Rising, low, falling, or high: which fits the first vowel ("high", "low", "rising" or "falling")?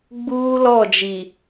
high